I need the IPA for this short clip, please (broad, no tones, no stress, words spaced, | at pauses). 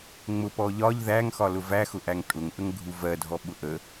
ŋ͡mʊpɔ ʎɒʎ ðæŋxɒlʊ væxʊʔæŋ tʼʊŋʔəŋɡʱu vɜdʱɔɓʊ ʔə